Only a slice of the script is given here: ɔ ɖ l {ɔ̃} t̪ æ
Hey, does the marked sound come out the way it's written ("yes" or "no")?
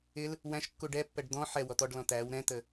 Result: yes